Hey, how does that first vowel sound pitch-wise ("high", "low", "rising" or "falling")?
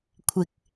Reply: low